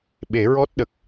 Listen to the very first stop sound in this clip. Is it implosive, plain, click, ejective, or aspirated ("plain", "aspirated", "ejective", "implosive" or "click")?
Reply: implosive